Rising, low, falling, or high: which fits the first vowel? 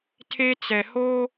high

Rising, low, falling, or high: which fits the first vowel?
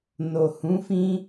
low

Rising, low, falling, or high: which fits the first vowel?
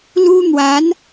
high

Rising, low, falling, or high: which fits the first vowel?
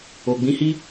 low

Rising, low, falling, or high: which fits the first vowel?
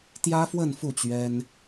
high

